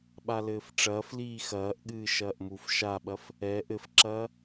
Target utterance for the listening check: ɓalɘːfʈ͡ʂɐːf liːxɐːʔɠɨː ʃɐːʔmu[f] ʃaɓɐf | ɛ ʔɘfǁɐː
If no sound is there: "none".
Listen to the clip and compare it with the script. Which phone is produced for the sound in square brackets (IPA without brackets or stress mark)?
f